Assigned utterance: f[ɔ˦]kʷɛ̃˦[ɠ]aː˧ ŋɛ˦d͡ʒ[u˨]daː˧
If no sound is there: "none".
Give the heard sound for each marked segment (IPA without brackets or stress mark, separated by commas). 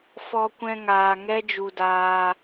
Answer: ɔ˦, ŋ, u˧